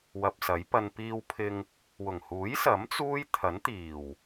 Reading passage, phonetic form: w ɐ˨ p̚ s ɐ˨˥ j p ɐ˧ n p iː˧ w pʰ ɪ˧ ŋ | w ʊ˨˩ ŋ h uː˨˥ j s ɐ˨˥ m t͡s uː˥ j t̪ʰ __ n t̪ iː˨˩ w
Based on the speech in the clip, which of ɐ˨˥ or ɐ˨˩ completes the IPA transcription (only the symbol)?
ɐ˨˥